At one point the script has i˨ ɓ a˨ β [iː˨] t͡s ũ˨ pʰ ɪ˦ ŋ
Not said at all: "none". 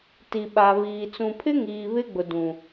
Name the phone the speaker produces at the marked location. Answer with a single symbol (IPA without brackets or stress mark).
iː˨